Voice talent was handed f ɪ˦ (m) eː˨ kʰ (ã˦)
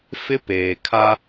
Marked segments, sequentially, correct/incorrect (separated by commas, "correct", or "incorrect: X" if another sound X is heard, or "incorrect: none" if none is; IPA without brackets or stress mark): incorrect: p, incorrect: a˦